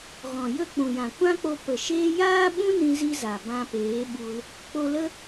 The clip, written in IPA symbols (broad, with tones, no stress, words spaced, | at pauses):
ɣɔ̃˨ jə˦˨k͡pũ˨jã˨ kʷã˦k͡po˧ pə˨ʃeː˦ jaː˦ɓũ˦ nĩ˦zi˦za˨ bã˧peː˨˦ɓu˧l | k͡po˧lə˦